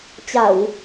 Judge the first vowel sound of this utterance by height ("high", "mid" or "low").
low